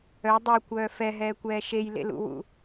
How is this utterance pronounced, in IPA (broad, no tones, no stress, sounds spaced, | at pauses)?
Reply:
œ dˤ o kʷ œː f ɛ ɦ ɛː kʷ ɛː ʃ e j l ḛ l ṵ w ṵ